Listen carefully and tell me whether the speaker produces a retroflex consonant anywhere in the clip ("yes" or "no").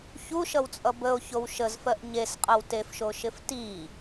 no